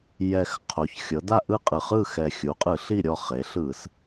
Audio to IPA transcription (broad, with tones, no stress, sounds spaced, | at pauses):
j ɛ˨˩ x qʰ o˩˧ ç xʲ ɤ˩˧ d a˥˨ ʔ ɯ˥˨ qʼ ɯ˨˩ χ ɯ˥˨ x ɛ˨˩ xʲ u˩˧ qʼ ɯ˧˩˧ ɬ i˥˨ ɾʲ ɔ˥˨ χ e˩˧ ɬ ɯ˧˩˧ s